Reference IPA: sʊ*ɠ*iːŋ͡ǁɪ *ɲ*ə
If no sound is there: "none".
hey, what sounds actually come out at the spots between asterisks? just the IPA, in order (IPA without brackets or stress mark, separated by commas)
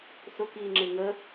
k, ŋ